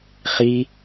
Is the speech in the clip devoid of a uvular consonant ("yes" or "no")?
no